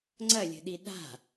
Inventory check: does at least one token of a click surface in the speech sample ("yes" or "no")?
yes